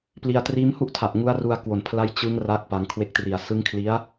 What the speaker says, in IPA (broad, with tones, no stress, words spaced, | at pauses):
pli˧a̯ triː˦˥mhu˥˩ʔtʰa˨˩ʔ ŋu˦˥a̯ru˧a̯kwo˨˩npʰla˦˥j t͡ɕɯ˦˥ŋ ra˥˩k̚pa˧ŋ kʰwe˦˥k̚tri˨˩a̯ sɯ˦˥ŋkʰli˦˥a̯